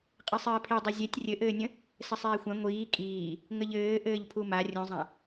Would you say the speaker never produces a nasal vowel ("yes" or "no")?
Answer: no